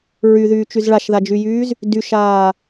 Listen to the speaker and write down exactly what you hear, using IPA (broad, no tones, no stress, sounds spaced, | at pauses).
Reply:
ɹ y ð yː t͡ʃ y z ɭ a ʃ ð a d͡ʒ y j yː z | d y ʃ aː